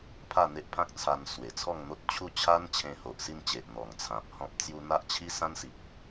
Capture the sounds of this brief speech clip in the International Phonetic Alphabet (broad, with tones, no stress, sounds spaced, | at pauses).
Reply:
pʰ a˥˧ n̪ e˦ ʔ pʰ ã˦ k̚ t͡sʰ a˧ n s w e˨˩ t͡sʰ ɔ˥˧ ŋ n̪ o˦ t̚ t͡ɕʰ u˥˧ t͡ɕʰ a˦ n t͡ɕʰ ẽ˧ h o˨ ʔ s i˥˧ n t͡ɕ e˨ ʔ n̪ ɔ˨˩ ŋ t͡sʰ ã˨ p̚ h ɔ̃˦ p̚ t͡s j u˧ n̪ a˦ ʔ t͡ɕʰ i˦ s ã˦ n s i˨ k̚